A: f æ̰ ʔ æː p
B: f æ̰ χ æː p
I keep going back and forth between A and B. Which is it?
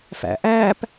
A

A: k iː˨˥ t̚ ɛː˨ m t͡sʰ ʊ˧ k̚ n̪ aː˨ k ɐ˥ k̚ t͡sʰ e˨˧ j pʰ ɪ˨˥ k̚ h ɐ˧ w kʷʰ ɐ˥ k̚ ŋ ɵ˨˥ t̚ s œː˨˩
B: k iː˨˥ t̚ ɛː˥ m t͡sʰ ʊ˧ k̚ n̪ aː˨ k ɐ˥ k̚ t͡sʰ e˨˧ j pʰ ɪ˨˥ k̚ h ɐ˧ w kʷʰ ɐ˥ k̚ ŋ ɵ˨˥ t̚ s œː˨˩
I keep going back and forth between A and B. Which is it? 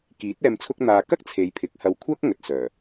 A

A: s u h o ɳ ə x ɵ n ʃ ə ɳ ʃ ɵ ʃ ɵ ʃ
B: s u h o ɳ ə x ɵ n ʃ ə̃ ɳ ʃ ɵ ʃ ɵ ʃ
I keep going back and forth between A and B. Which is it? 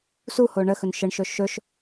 A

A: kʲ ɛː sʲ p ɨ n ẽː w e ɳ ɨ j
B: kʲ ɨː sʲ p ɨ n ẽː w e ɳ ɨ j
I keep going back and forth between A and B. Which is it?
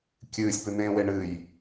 B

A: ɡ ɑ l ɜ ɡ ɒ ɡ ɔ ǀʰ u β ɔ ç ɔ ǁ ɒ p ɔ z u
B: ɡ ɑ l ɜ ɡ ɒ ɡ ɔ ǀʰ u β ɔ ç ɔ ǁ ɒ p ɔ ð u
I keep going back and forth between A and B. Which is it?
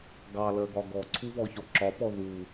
B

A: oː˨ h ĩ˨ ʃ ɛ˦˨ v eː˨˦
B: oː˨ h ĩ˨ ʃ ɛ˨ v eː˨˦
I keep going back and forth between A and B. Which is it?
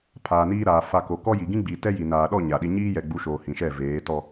A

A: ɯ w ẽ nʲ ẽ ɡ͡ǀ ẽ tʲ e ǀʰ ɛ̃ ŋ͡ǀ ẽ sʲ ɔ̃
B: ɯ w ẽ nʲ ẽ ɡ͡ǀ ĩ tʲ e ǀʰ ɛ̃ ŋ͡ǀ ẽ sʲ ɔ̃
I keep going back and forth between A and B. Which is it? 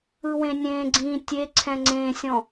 B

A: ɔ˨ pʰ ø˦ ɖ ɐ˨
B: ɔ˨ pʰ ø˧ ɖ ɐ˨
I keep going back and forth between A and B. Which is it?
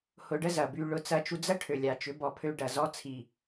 B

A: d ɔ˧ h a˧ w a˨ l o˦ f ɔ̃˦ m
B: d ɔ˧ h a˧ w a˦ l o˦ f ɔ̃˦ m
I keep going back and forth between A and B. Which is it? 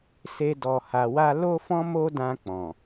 B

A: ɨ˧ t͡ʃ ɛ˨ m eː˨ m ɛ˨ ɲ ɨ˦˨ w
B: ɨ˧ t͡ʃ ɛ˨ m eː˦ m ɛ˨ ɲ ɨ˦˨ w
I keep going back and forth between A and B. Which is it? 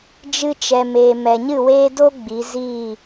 A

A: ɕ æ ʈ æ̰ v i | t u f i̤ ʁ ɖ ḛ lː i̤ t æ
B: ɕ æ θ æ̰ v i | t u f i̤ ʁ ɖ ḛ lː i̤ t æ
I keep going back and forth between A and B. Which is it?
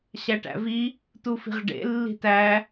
A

